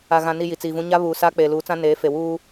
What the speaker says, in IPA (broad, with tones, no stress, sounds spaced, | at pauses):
a˨ ɣ ã˨ n i˨ j i˨ t͡s iː˨ v ũ˦ ɲ a˦ β uː˨ s aː˦ k͡p eː˨ l uː˨˦ t͡s ã˦ n eː˨˦ f e˨ w uː˦